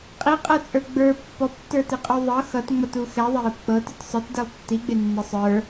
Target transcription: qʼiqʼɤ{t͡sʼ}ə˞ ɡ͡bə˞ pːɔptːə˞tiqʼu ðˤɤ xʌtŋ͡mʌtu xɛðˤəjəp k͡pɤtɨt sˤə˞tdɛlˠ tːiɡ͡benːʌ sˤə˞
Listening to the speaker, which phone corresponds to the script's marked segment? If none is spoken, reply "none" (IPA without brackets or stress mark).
t͡sʼ